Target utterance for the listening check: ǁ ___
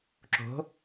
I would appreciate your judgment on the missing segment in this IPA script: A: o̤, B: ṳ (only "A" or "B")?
A